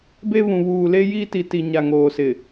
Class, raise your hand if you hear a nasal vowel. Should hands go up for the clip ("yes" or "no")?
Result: yes